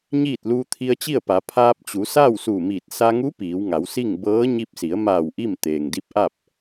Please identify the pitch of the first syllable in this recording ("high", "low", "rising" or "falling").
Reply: falling